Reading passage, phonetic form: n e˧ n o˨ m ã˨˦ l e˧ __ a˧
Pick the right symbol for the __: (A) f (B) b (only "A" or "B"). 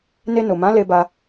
B